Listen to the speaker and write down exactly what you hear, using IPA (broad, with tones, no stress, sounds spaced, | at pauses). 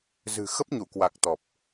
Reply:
z ɨ̤˨˩ x ə˦˥ p̚ ɲ u˧˩ k w a˨˩ k̚ t̪ ɔ˨˩ p̚